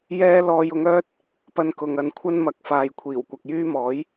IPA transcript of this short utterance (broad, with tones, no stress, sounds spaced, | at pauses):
j ɛː˥ l ɔː˧ j ʊ˨˧ ŋ œː˥ t̚ | p ɐ˧ n k ʊ˨ ŋ ɐ˨˧ n kʷʰ ɐ˥ n m ɐ˨˥ k̚ f aː˨ j kʷʰ iː˨˩ w kʷ ɐ˨ k̚ j yː˥ m ɔː˨˥ j